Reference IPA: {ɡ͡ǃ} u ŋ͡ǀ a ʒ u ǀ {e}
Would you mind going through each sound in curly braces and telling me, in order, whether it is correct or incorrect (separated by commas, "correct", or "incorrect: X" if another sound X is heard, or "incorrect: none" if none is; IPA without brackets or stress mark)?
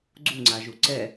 incorrect: ɡ͡ǀ, incorrect: ɛ